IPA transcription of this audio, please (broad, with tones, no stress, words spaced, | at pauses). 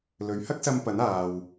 lɵ˨˥ɥhɐ˥k̚sɐ˧mpɐ˨˥n aː˨w